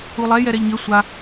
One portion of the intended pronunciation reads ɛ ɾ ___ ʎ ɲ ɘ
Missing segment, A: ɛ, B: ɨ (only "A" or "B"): A